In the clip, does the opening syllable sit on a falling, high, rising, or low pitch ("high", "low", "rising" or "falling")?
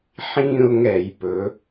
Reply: falling